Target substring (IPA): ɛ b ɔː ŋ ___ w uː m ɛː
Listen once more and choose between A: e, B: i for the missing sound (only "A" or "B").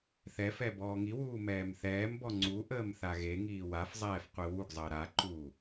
B